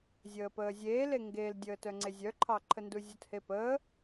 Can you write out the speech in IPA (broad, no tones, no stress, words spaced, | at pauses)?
zʲəːpəːzʲeːle ŋɡeldʲəːt œŋ͡ǀezʲœǃʰɑ ǃʰənduzʲuthe pəː